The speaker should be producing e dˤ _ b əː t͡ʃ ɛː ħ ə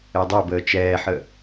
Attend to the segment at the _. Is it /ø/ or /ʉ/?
ø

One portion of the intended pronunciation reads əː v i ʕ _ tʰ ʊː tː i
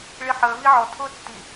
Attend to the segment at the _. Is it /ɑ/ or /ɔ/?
ɔ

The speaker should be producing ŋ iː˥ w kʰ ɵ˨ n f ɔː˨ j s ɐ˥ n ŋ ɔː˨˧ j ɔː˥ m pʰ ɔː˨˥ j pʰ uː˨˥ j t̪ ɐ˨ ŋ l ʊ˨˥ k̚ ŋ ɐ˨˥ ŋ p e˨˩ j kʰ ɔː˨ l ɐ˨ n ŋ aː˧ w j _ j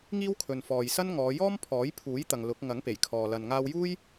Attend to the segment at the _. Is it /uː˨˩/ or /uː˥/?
uː˥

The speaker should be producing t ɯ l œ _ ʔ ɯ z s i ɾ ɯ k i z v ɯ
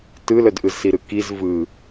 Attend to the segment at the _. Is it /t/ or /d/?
d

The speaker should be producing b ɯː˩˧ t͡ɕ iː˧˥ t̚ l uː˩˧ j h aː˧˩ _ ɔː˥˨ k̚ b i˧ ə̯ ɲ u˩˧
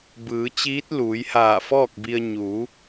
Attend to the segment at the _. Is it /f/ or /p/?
f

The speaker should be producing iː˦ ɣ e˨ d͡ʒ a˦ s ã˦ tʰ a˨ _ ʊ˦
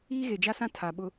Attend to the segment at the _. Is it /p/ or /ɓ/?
ɓ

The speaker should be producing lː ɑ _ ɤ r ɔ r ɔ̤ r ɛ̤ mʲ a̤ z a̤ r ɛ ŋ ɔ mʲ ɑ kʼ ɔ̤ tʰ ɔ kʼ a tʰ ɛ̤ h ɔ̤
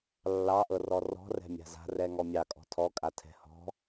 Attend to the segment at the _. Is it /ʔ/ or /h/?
ʔ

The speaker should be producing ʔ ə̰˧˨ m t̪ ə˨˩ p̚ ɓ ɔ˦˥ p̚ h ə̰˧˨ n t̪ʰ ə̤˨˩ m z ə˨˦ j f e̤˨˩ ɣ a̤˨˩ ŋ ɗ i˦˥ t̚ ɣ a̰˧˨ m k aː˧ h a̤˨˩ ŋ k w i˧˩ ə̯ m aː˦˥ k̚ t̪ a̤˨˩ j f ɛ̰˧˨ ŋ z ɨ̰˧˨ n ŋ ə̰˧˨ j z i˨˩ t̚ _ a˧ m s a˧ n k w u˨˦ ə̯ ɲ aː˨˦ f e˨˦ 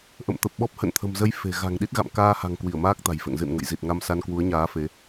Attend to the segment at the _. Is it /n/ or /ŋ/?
ŋ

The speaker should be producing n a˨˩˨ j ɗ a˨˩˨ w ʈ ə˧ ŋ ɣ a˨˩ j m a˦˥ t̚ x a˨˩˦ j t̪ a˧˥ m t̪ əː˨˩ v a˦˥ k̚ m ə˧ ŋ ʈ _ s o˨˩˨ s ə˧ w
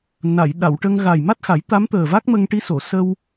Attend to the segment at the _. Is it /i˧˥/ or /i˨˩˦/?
i˧˥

